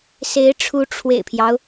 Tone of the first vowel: rising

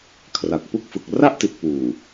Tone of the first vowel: low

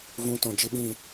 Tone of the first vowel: rising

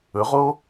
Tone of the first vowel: rising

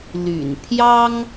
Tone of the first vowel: low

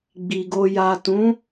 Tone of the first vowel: low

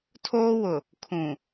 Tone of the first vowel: high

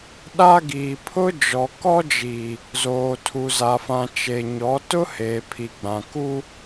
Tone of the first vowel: high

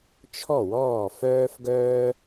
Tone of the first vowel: falling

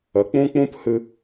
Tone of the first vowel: rising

